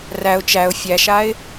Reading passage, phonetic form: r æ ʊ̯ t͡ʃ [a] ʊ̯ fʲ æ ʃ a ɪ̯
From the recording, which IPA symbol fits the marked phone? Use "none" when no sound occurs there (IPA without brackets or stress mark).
æ